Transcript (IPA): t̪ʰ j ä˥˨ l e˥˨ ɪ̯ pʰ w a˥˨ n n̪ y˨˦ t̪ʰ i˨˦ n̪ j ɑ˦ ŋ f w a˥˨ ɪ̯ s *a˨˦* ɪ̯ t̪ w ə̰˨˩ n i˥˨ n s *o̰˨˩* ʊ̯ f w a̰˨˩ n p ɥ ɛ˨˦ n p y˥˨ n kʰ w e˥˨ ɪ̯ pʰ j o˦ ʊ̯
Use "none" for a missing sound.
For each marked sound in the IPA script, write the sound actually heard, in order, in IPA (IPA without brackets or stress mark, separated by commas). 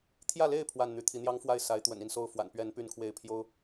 a˨˦, o˥˨